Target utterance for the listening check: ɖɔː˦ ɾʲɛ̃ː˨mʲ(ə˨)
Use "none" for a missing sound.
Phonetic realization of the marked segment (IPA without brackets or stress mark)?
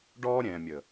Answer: ə˨